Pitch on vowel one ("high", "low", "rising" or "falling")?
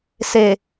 low